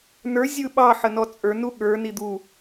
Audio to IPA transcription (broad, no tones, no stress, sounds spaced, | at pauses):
n ə˞ zʲ ɯ ɓ ɑ ħ ə n ɔ t͡sʼ ə˞ n u ɠ ə˞ n i d̪ u